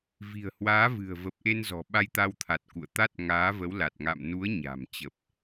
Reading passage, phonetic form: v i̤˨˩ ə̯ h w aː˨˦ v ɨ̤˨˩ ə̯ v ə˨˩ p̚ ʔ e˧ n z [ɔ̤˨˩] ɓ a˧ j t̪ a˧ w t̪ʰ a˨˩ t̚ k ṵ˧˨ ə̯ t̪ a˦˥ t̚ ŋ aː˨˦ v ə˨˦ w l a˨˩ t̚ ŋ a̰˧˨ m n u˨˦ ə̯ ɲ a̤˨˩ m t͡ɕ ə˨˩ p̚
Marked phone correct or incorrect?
correct